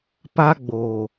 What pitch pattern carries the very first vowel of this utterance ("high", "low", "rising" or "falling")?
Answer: high